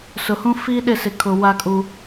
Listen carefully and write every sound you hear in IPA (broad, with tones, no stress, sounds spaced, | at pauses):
s ʊ˨ h ũ˦ f iː˦ ɗ ɪ˦˨ s ɪ˨ kʰ ʊ˨ w a˦ kʼ u˦